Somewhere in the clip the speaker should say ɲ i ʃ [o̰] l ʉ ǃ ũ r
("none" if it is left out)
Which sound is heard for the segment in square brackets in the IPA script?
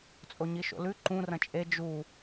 o̰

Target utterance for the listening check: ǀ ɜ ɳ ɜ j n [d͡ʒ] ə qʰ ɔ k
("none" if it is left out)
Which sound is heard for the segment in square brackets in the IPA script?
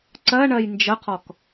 d͡ʒ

